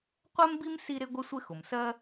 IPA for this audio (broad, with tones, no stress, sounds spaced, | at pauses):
qʷ ɛ˥ m b i˥ m s i˥ ɾ ɪ˥ ɡʷ ɪ˥ sʷ ɪ˥ x ʊ˩ m s ɜ˥